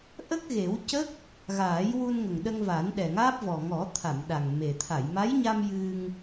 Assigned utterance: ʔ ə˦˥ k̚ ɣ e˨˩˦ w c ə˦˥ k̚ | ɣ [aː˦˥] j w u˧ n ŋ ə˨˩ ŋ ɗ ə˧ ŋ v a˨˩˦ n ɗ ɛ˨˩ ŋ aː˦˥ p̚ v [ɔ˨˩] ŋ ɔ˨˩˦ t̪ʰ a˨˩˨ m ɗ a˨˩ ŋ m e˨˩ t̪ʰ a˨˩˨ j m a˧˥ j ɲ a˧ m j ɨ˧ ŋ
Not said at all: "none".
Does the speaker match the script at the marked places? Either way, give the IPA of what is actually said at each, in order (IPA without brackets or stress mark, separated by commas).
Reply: aː˨˩˦, ɔ˨˩